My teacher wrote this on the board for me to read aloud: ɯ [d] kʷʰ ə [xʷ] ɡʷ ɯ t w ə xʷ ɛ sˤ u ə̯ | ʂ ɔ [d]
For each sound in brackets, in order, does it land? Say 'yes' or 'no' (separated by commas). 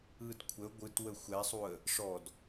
yes, no, yes